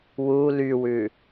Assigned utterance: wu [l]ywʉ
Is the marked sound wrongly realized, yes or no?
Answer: no